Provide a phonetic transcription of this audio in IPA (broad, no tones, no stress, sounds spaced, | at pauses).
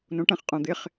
n õ ʈ ɐ̃ χ qʼ õ d̪ ɪ χ